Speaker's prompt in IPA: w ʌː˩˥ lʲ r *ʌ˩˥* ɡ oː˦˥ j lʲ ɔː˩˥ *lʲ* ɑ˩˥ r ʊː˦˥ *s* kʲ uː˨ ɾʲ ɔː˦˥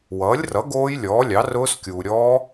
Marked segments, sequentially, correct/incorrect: correct, correct, correct

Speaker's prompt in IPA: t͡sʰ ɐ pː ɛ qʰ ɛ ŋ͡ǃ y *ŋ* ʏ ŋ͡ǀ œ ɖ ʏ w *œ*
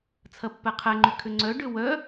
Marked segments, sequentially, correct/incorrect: incorrect: kʰ, correct

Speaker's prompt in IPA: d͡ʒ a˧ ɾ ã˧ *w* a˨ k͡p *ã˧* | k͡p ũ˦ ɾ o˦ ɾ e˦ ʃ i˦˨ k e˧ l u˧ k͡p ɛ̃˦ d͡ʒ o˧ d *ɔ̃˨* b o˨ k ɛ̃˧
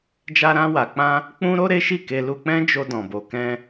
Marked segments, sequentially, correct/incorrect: correct, correct, correct

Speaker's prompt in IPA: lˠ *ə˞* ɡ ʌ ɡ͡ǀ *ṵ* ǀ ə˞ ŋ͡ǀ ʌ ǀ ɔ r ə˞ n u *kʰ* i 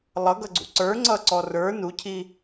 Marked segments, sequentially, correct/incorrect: incorrect: ʌ, correct, incorrect: cʰ

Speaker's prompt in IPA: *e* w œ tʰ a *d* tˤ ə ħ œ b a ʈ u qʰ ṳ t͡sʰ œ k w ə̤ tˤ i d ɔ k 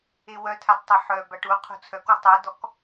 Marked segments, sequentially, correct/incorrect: correct, correct

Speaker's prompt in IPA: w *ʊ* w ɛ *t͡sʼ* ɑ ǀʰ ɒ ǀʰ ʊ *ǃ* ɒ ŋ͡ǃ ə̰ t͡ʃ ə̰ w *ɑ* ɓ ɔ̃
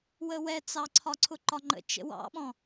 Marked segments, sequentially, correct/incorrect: incorrect: ə, incorrect: t͡s, correct, incorrect: ɑ̰

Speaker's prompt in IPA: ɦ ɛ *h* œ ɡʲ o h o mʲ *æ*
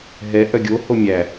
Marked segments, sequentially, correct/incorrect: incorrect: ʔ, correct

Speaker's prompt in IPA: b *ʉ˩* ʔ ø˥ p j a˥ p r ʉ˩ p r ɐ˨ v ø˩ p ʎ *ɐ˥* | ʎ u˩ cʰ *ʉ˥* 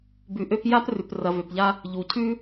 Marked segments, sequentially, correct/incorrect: incorrect: ʉ˨, incorrect: a˥, correct

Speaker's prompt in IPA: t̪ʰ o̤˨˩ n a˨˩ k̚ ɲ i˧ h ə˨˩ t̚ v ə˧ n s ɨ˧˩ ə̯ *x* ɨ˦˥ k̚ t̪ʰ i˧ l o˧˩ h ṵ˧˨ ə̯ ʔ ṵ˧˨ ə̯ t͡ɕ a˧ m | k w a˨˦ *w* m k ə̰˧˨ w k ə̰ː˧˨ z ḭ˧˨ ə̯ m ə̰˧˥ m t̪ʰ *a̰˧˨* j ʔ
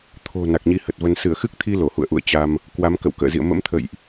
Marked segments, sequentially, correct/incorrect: correct, incorrect: none, incorrect: ə̰˧˨

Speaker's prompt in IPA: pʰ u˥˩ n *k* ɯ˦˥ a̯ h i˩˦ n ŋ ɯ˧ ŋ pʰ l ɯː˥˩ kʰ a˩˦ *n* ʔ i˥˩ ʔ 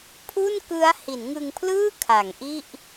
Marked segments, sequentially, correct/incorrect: correct, incorrect: ŋ

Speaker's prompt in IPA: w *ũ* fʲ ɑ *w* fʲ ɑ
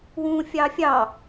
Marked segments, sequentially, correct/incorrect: correct, incorrect: none

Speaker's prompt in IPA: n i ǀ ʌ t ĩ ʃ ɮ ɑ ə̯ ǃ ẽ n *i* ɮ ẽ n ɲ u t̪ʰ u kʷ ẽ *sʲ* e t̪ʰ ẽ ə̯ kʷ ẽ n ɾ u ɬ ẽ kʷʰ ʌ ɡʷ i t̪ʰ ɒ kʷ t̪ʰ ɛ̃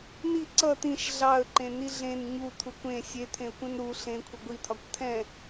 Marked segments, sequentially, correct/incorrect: correct, correct

